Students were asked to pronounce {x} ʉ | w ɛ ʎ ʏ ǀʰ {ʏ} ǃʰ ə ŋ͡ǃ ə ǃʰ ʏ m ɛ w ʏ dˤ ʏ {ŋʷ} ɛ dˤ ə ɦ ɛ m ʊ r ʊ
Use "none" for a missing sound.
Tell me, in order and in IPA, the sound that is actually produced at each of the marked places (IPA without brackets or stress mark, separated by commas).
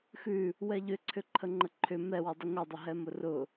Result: x, ʏ, ŋʷ